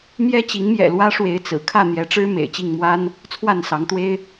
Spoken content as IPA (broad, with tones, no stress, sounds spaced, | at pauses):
m j ɛ˦ t͡ɕ i˨˦ ŋ m j ɛ̰˨˩ l w ä˦ ʂ w e˨˦ ɪ̯ t͡s ɹ̩˨˩ kʰ ä˥˨ n̪ j ɛ˨˦ ʈ͡ʂ ɻ̩˦ m ḛ˨˩ ɪ̯ t͡ɕ i˥˨ ŋ m w a˦ n | t͡sʰ w a˥˨ n s ɑ˨˦ ŋ t̪ w e˦ ɪ̯